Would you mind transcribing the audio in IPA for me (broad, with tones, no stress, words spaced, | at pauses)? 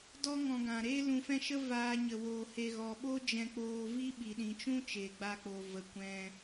dɔ˦ŋɔ̃˧ ɡã˧ ɾeː˦lũ˧fɛ̃˦ ʃə˦ vaː˦ɲə˧ woː˧he˧ ɣɔ˨ɓo˦ d͡ʒɛ̃˧k͡poː˧vi˦ ɓi˨ɗĩ˨t͡ʃũ˦ t͡ʃeː˨ɡ͡ba˧k͡po˨ və˨ kʷɛ̃˧